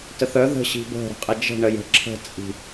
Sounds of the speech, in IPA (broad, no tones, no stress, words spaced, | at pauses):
təθœ ðə̤ ɕi̤bə̤ ɾə̤qʼɪd͡ʒə̤ ɳəjə̤ ǁʰə̤t͡sʼi̤